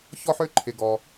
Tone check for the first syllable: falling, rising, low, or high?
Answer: high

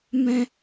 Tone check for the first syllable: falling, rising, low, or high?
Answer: high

